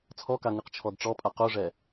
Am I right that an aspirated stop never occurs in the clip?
no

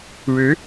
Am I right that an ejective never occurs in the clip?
yes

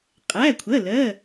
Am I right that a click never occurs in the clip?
yes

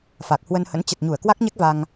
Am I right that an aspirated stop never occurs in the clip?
yes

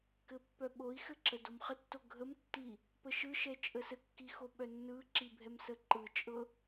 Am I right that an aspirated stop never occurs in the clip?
yes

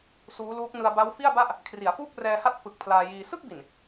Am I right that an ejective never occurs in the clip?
yes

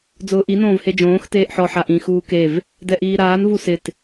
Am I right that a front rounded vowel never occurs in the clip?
yes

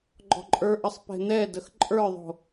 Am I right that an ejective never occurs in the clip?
no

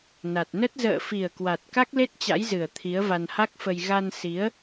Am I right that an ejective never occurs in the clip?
yes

